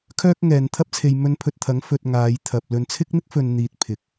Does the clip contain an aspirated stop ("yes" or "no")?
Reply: yes